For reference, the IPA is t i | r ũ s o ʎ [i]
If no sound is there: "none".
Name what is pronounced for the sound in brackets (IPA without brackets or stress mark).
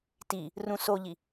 i